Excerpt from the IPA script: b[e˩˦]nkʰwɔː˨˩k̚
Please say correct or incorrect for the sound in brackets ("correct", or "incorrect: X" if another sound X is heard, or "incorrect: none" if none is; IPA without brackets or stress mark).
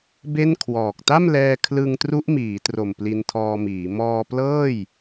incorrect: e˥˩